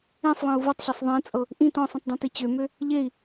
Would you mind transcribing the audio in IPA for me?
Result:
ẽsˤlˠẽu̯ vɤtˤɕøsˤ ðˤẽt͡sʼɤ | ʔĩ tɔ̃sˤĩtˤdˤẽti t͡ɕømø | ʎei̯

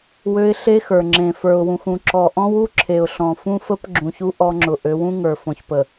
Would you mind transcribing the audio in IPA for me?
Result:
wø˦ɪ̯ ɬe˦xə˞˨ŋ͡ǁẽ˨ fə˞˨ʊ̯wũ˨xũ˨ ǁɔ˨ʔɔ̃˦wu˦ ǁʰe˨ʊ̯ɬɔ̃˨fũ˦fə˦p ɡ͡ǁũ˨çu˦ ʔɔ˦ŋ͡ǁʊ˨ ʔø˨˦wũ˦ŋə˞˨ fɔ̃˨çpə˨

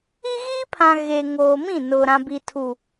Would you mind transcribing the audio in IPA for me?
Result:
i˦ɣiː˦pʰã˨ ɣe˨ŋoː˨mĩ˦˨nʊ˨ ɾã˨bi˨tʰu˨

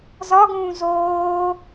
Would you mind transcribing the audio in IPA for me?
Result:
zɒɡũː zoː

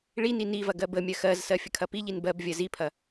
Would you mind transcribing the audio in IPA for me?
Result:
ɭini nivɐ ɡɜbəmʲɜ xɜzsɜ fʲəkʰɐpiʎin bɜb vʲɜzipʰɐ

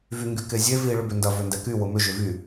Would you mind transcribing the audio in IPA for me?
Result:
vyŋɡykezʲe vi ɭʏbʏndɐ vøndɛky wʊmʏ ʒʏvy

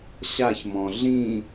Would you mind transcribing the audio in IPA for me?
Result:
ɕaçmɔ̃ ɮĩ

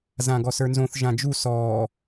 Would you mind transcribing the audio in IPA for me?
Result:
zãɡɔsə˞nzõθ ʒãd͡ʒu sɔː

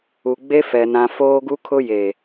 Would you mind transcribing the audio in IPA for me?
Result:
u˨ ɡ͡be˦ fɛ˨ nã˨ foː˦ɡu˦kʰʊ˦je˨

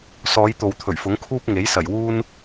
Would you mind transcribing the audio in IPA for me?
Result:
sɔː˨˧j t̪o˨wt̪ʰɵ˨˩ɥfʊ˨˥ŋkʰuː˥p̚ ŋe˨˥jsɐ˨˩j wuː˥n

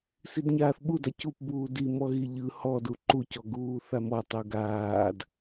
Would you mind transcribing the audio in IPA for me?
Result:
sidɲaːθɓuda cupbuː di mɔɣiʎɯ hɔdu ǃucɔɡuː θamɔtˤu ɡaːd

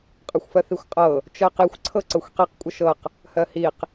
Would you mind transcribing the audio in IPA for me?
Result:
qʼɤxʷfɜθixʷqʼɤ | t͡ʃɜqixʷ ǀʰɤǀɤxʷqiq kʷʼəʃɤq | hɜhiq

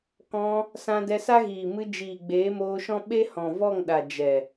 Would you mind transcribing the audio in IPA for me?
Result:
kɔ̃˧ | sã˧dɛ˧sa˦ɣiː˨ mɨ˧d͡ʒiː˨ ɡ͡beː˨˦moː˧ʃɔ̃˦ ɓe˦hɔ̃˨vɔ˦˨ŋɗa˨ d͡ʒɛ˨

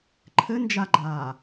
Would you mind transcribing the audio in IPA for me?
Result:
ǃʰɘnd͡ʒaɡ͡ǃaː

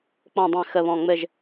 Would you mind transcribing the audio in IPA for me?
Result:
k͡pɔ̃˦˨dˤɛ̃˦˨ xə˦˨βɔ̃˦˨ ŋ͡mɘ˦˨ʒ

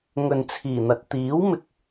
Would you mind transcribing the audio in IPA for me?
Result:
ŋɵ˨nt͡sʰiː˨˩n̪ɐ˨t̚ t̪iː˨˥wmɪ˨˥k̚

